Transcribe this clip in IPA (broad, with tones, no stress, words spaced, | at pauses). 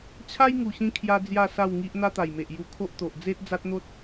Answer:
t͡ɕʰa˦jŋu˨˩ɕĩ˧ kʰja˦d͡zja˥˧sa˥˧wŋi˦ʔ n̪a˦t̪a˨˩jme˨ʔju˧ kʰo˦ʔt̪o˨ʔ d͡ze˦t̚d͡za˦t̚n̪o˦t̚